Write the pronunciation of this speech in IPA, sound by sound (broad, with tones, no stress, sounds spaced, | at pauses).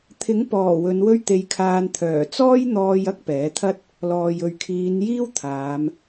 t̪ʰ ɪ˨˥ ŋ p ɔː˨˩ w ɵ˨˧ n w ɵ˥ ɥ t̪ e˧ j kʰ aː˧ n t̪ʰ œː˨˩ t͡s ɔː˥ j n̪ ɔː˧ j ɐ˥ k̚ p ɛː˨˥ t̪ʰ ɐ˥ t̚ | l ɔː˨ j ɵ˨ ɥ kʰ iː˨˧ n j iː˥ w t̪ʰ aː˨˧ m